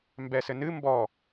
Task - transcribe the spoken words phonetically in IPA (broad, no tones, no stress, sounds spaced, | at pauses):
m b ɛ s ɘ n ɨ m b ɔ